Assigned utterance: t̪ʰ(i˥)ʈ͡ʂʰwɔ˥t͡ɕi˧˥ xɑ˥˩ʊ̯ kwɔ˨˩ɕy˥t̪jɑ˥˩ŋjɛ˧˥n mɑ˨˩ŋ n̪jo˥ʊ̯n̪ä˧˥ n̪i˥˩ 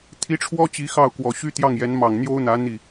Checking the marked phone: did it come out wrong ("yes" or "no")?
yes